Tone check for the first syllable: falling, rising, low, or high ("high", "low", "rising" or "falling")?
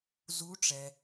rising